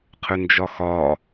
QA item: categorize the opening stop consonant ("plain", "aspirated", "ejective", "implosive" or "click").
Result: aspirated